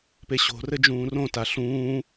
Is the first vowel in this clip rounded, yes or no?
no